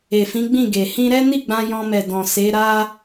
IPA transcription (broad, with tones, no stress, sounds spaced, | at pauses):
e˨ f ĩ˨˦ ɡ͡b ĩ˦˨ ɡ e˨ h ĩ˧ ɾ ɛ˦ n i˦˨ ɡ͡b ã˧ j ɔ̃˧ m ɛ˨ d ɔ̃˨ s e˨˦ ɾ a˦